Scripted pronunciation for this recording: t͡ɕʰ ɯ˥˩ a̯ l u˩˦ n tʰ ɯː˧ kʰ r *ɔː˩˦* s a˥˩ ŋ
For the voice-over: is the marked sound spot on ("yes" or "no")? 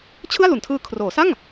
no